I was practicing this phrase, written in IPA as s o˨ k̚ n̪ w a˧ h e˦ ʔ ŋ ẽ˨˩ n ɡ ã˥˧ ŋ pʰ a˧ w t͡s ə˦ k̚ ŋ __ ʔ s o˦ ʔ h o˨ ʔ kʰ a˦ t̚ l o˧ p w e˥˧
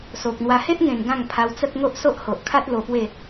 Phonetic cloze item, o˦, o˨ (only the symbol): o˦